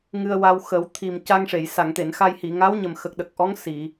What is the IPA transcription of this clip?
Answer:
ŋɨ˧ə̯wa˧wxə˨˩˦w t̪ʰi˨˩mca˧ŋʂe˨˩˨j sa˨˩˨ŋt̪e˨˩˨nxa˧jhi˨˩˨ ŋa˧˥wɲə˨˩mxə˨˩k̚ ɗə˨˩k̚ʔɔ˧˥ŋ si˨˩˨

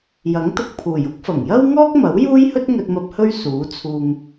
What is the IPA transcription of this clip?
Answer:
jɐ˨˥ŋ t̪ʊ˧k̚pʰuː˨˩jʊ˥k̚ fɐ˨˩ŋjɐ˥wŋɔː˥k̚mɐ˨˥w juː˥jhɵ˥t̚ŋɵ˧t̚mɐ˧p̚ hɵ˥ɥ suː˨˥t͡sʰuː˧ŋ

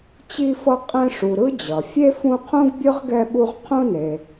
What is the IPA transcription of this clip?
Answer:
t͡ɕi˦fʌ˦ qʼɛ̃˦ ʂu˨ɾɯ˥ d͡ʑʌ˩ fʲe˥fũ˦qʰũ˥ɡ bʲɯ˥ʁɡɛ˦ɓu˦ʁ qʰũ˦ne˨

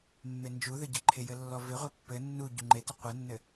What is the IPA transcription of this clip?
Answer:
mːend͡ʒuðɘ ɟɪǃʰɪjɘ lːɔvɪʁʷe pːɘ nːu ɟuŋ͡ǃetɪ qʷɘnːɘ

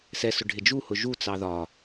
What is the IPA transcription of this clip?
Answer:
sɛsʊ ɖʱɪd͡ʒuhʊ ʒut͡sɑ ðɒ

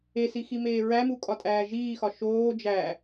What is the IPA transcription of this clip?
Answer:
esiximeː ɹæmukʼɒtʼæː ʒiːxɒ ʃoː d͡ʒæ

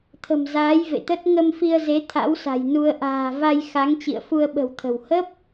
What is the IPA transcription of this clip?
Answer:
t̪ʰə̤˨˩mzaː˨˦jvḛ˧˨t̪ə˦˥t̚ ŋə˧m fi˧ə̯ze˨˦ t̪ʰa̰˧˥wsa̤˨˩jnu˧ə̯ ʔa̤ː˨˩va˧j xa˨˦ŋ t͡ɕḭ˧˨ə̯fu˧ə̯ɓə̤˨˩wt̪ʰə̤˨˩w hə˦˥p̚

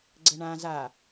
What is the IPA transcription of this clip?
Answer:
ɡ͡ǀɘɳã za

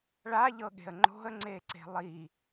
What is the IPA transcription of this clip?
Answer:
ɭaʎɤɠe̤ə̯ ŋ͡ǃo̤ə̯ŋ͡ǀeǀe̤ lˠi

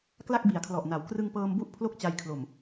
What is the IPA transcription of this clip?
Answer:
kla˥˩k̚bi˩˦a̯kʰlɔ˨˩ʔna˩˦w krɯ˧ŋpɤː˧mbu˦˥ʔ pʰlo˥˩k̚t͡ɕa˧jkʰlo˨˩m

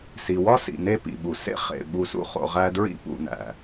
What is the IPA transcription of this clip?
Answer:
si˩wɒ˥sḭ˩ ne˦pḭ˩ɓu˩ sḛ˥ χḛ˩ ɓu˨sṵ˦χo̰˨ ʁæ˦dɹḭ˥pṵ˨næ̰˩

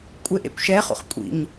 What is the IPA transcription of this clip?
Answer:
kʷʼeʔḛkʷʃɛχṵχ kʷʼḭɲ

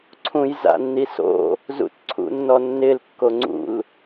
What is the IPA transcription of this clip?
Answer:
ǀʰũjza̰nːiso̰ | zṵtǀʰṵnːɔnːɪl kːoŋ͡ǀṵl

